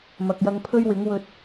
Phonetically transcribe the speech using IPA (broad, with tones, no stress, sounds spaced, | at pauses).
m ɐ˨ k̚ j ɐ˧ ŋ pʰ ɵ˥ ɥ w ɪ˨˥ ŋ w ɵ˧ t̚